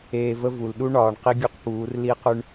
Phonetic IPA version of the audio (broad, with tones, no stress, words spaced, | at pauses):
eː˨ və˦ vu˨l ɗu˦ɳɒː˨ɳ qi˦ɡʲu˦qpuː˨˦r li˦qʉ˦ɳ